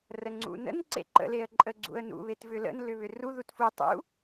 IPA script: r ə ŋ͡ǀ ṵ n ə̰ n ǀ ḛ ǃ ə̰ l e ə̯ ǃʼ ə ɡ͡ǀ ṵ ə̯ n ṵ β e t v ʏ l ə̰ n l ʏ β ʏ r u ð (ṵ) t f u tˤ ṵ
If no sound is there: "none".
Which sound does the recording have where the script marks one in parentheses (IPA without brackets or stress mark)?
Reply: u